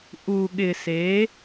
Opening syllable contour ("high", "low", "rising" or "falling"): low